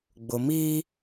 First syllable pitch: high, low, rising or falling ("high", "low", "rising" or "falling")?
low